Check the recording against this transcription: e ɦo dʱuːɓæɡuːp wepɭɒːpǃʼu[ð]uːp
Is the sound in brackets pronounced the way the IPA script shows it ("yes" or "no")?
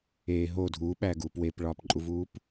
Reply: no